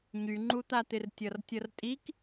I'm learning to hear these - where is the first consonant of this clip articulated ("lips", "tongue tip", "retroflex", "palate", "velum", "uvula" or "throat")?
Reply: palate